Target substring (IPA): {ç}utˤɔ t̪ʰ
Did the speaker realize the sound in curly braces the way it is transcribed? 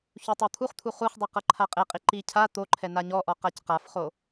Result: yes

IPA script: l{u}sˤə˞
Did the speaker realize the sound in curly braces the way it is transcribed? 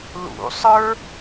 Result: no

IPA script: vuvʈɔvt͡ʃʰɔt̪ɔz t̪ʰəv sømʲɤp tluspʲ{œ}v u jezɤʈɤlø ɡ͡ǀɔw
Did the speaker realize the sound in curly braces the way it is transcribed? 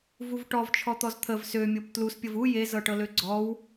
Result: no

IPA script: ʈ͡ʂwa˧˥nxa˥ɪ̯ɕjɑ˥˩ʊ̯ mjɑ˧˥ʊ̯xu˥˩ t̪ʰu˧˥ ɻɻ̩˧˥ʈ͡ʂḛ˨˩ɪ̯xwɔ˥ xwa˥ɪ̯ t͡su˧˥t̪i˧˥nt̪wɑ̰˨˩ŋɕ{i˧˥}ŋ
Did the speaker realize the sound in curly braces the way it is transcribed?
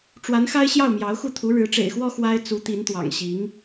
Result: yes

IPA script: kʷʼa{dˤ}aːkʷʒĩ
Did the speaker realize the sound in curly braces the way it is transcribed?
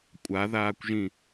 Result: no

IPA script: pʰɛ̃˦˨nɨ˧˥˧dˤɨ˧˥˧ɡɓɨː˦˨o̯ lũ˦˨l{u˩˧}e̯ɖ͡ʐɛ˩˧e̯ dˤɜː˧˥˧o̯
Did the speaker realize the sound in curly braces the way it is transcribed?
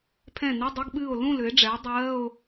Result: no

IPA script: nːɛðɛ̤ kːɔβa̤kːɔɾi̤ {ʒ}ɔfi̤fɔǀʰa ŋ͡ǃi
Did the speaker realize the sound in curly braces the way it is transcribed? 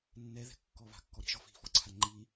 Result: yes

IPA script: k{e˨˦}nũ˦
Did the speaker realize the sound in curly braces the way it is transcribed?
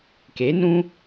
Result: yes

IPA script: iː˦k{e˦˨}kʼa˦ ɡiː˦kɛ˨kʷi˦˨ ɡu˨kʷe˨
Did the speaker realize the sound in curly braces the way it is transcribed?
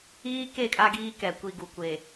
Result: yes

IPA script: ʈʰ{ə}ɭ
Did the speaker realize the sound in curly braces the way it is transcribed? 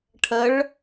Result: yes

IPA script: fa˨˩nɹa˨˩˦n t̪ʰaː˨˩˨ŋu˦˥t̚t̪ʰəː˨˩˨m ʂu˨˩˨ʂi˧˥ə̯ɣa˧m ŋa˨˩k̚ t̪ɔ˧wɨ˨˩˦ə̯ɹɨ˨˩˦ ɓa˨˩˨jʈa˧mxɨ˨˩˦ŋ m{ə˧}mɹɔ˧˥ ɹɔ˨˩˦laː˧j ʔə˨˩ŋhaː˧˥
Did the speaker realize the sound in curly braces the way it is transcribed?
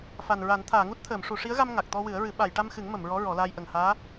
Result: no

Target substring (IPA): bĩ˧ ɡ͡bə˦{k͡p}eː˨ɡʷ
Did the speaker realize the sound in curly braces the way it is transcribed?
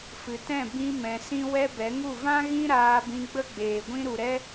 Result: no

